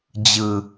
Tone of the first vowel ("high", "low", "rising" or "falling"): low